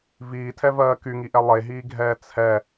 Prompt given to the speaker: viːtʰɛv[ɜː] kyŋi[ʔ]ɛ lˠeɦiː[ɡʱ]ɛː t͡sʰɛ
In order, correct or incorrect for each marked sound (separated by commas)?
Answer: correct, correct, correct